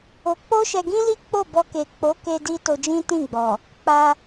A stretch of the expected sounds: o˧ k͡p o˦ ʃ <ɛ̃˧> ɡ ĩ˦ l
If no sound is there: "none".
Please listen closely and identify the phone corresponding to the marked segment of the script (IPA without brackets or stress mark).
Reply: ɛ˧